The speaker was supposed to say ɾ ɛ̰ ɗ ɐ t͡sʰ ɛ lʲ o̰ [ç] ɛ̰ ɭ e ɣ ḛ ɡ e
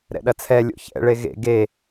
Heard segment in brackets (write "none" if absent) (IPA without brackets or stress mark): ç